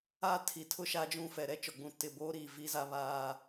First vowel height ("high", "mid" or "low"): low